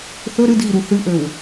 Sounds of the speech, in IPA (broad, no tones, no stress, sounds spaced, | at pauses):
θ ɵ ɾ ɨ d ɣ i ɾ u θ ɨ ʔ ø w